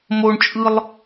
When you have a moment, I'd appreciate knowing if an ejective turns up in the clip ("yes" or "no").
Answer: yes